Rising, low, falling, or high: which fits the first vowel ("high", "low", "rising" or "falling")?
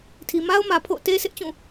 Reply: low